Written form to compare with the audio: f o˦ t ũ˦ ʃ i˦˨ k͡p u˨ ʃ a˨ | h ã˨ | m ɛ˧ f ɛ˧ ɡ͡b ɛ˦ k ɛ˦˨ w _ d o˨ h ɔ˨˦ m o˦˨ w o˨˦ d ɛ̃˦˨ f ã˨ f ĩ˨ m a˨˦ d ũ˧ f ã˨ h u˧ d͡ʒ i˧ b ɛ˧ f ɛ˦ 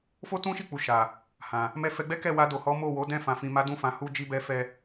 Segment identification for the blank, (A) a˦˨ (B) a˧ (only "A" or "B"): B